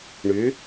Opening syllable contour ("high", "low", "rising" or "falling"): rising